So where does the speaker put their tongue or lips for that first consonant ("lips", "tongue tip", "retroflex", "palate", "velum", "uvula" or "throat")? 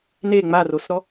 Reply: tongue tip